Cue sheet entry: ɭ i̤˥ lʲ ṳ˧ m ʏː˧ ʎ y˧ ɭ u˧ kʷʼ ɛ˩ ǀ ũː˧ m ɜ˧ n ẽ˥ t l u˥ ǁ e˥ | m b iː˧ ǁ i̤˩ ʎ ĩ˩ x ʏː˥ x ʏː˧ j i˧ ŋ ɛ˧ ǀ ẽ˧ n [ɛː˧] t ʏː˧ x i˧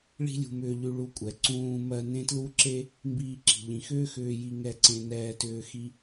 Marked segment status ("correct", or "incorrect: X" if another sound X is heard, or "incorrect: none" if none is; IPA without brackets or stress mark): correct